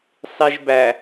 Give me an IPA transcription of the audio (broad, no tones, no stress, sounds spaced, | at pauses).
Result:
sˤ i ʒ b æ